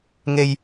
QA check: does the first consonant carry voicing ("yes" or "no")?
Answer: yes